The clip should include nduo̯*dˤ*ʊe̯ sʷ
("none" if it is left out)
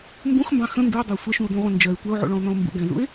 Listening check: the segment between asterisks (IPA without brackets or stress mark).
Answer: dˤ